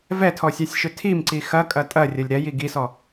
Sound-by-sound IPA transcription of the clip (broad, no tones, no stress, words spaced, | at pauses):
vɛtʰɔsʲasʲʃʏ tʰimǀi xɐkʼɐ tʼɐrʲɐlʲ ɾɛji ɡisɔ